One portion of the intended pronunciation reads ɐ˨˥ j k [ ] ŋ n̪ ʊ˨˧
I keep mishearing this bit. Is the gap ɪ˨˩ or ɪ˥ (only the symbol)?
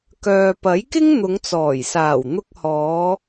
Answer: ɪ˥